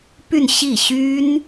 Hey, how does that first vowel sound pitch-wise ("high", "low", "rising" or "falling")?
falling